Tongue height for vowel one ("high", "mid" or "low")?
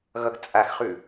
mid